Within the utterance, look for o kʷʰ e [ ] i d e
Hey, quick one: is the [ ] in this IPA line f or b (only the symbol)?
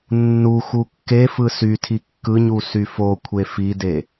f